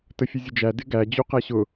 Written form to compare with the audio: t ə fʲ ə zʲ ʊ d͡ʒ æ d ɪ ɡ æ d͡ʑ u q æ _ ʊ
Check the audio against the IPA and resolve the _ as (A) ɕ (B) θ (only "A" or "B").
A